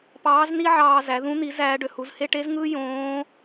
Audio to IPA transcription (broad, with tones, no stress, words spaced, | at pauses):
pɑː˧˥z ni˥ʕɑː˧zæ˩˧ ðũ˧˥n̪i˩˧zæː˩˧ ɖø˩hu˩˧zhe˥ ʈe˧˥zŋɯː˥ jõː˧˥